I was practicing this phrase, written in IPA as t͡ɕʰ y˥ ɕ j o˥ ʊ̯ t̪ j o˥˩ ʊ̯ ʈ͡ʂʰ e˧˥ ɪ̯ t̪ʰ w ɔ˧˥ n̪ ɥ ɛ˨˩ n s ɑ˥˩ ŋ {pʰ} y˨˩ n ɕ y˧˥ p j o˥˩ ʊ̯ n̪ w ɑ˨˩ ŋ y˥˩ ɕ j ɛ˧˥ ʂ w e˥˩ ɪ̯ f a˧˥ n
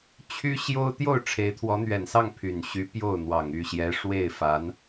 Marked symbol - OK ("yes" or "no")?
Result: yes